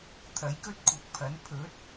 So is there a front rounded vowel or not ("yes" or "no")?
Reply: no